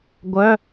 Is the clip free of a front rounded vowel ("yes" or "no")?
no